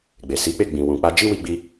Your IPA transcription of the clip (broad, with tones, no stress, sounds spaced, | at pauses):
ɡ͡b e˨ s i˨˦ k͡p e˦˨ ɡ͡b ĩ˨ w ũ˨ k͡p a˧ d͡ʒ i˦ w i˧ ɡ͡b i˧